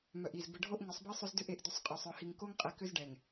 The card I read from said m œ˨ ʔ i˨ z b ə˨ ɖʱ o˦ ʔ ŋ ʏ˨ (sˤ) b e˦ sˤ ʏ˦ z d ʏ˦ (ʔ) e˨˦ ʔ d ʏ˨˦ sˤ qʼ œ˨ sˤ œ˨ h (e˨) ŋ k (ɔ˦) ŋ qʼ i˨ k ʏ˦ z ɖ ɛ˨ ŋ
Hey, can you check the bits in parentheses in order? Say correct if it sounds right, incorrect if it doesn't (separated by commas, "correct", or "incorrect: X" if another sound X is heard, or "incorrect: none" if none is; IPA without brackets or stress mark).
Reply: correct, correct, incorrect: i˨, incorrect: o˦